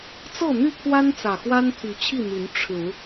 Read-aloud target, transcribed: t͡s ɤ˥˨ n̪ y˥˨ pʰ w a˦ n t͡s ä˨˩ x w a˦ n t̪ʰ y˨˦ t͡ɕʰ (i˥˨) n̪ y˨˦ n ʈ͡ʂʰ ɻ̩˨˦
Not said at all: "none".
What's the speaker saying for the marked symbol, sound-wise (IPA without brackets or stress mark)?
i˥˨